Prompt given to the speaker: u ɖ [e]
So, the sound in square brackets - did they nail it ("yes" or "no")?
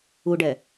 no